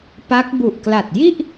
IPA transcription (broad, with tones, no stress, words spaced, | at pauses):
pa˦˥k̚ bu˨˩ʔkla˨˩t̚ji˥˩ʔ